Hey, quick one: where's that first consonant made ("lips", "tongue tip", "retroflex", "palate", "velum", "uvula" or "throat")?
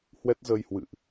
throat